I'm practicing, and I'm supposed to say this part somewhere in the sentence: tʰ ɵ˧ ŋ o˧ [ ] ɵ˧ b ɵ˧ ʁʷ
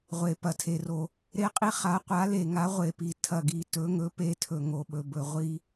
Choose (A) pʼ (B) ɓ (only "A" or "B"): B